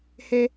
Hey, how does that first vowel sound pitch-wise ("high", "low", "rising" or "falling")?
high